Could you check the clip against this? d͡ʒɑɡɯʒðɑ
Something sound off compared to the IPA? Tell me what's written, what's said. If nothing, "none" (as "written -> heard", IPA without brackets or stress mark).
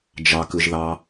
ɡ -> k